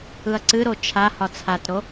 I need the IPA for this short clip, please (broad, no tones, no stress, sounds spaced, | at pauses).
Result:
ɯ ɐ̯ ǀ ɨ ɾ o t͡ʃʰ a h ɒ t͡sʰ a t ɾ o